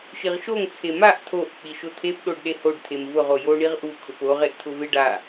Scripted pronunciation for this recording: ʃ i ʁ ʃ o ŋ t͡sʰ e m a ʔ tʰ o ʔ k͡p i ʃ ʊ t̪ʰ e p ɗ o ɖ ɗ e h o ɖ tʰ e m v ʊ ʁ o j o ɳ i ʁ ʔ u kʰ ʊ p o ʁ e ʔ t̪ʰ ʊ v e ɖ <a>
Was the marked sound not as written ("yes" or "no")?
no